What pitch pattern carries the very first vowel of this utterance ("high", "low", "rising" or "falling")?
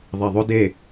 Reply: low